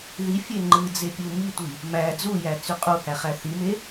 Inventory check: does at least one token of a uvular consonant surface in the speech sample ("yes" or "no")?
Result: yes